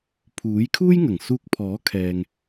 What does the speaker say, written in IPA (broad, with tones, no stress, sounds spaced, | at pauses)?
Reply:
pʰ uː˨˥ j kʰ uː˥ j ŋ ɐ˨˩ ŋ s uː˧ k̚ pʰ ɔː˨˥ kʰ ɛː˧ ŋ